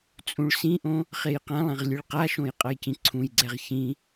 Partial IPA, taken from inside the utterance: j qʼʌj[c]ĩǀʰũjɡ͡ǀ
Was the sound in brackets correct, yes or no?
yes